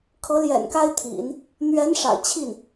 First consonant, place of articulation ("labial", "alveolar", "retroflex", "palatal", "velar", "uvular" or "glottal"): velar